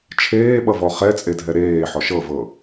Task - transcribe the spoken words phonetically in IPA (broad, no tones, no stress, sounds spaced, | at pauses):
t͡ʃʰ eː ɓ ʌ v ɔ χ ɛ t͡sʼ e dʱ ɛ ɾ eː ħ ɔ ʃ ɤ v ɤ